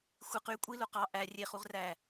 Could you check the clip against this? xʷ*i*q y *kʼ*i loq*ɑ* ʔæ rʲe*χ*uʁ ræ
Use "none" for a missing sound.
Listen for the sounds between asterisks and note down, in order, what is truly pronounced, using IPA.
i, kʷʼ, ɑ, χ

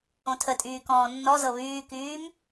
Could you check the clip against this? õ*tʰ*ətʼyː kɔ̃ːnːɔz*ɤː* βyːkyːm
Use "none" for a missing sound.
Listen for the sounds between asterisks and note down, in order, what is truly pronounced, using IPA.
tʰ, ɤ

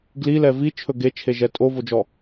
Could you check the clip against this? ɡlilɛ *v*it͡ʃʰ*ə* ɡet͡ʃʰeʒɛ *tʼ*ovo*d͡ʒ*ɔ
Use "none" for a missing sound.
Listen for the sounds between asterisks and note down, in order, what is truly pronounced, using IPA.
v, ɵ, tʼ, d͡ʒ

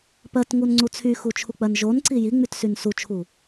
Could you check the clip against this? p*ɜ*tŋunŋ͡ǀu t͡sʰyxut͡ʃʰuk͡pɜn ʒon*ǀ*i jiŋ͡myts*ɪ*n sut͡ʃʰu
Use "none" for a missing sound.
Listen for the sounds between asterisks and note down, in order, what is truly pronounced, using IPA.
ɜ, ǀ, y

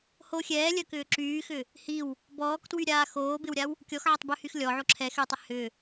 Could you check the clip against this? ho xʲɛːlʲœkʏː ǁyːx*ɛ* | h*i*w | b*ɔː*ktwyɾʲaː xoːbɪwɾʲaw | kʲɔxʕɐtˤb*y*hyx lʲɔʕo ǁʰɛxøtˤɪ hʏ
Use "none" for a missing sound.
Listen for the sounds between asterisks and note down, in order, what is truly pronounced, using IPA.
ʏ, i, ɔː, ø

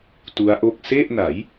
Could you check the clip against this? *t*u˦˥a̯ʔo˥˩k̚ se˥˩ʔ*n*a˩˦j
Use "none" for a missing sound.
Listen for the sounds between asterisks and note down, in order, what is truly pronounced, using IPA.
t, n

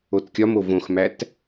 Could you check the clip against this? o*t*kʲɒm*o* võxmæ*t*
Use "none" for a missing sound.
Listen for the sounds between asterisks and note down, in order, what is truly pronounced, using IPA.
t, o, t

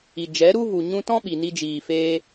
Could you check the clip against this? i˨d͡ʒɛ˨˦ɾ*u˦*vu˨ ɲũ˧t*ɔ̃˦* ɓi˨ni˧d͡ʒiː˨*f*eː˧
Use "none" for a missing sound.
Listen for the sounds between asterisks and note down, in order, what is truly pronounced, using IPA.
u˦, ɔ̃˦, f

